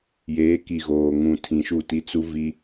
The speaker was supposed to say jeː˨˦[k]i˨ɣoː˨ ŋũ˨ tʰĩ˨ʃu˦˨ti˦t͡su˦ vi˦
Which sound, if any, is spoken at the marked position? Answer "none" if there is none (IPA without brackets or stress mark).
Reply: k